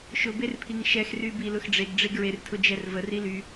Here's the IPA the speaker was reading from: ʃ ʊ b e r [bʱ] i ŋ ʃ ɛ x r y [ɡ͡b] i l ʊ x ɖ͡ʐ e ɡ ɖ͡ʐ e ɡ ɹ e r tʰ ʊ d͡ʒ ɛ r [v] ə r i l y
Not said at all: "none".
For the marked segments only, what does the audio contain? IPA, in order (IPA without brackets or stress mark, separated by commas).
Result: pʰ, b, v